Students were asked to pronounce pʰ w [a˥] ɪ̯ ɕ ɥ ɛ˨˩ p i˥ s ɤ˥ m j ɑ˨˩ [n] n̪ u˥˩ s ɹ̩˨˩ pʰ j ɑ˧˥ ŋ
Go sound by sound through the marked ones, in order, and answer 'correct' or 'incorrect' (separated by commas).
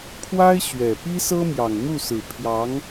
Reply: correct, incorrect